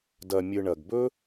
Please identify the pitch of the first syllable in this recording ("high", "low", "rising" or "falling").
low